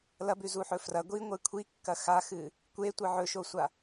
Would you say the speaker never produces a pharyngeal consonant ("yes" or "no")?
no